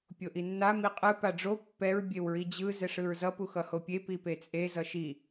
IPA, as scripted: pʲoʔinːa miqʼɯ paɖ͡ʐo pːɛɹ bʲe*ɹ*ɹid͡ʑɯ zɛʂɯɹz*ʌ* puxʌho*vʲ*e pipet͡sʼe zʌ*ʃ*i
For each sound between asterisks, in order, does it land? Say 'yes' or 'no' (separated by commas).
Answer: no, yes, no, yes